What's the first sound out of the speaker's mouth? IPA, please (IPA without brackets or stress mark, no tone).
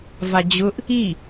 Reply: v